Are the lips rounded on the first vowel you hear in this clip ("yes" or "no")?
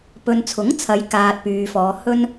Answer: yes